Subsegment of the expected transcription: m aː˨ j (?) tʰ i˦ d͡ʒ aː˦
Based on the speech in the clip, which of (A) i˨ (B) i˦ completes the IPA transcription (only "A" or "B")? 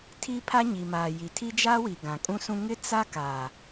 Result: A